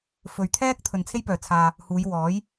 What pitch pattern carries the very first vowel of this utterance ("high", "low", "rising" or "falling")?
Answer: low